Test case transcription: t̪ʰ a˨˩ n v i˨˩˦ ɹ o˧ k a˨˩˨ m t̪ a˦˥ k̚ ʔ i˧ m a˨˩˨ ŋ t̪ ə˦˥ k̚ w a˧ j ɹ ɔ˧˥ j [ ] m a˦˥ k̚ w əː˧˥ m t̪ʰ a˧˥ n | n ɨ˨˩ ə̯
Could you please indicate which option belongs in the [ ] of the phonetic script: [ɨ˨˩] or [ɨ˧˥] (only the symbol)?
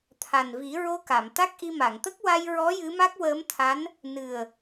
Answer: ɨ˧˥